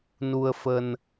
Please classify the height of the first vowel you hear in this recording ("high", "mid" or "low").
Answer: high